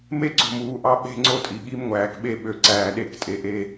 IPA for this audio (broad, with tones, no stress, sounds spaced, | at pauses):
m e˦ ǀ o̤˨ m uː˨ ʔ ɑ˦ ɓ e̤˦˨ ŋ͡ǀ o˦ tʼ i˨ ɠ i˦ m ŋʷ æː˨ k ɓ e˦ ɓ ø˨ ǀ æː˨ ɗ e˦˨ k tʼ e˨ ʔ e˦